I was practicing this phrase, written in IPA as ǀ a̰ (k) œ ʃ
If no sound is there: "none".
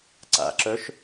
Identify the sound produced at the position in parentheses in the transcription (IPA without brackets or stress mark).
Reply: ǁ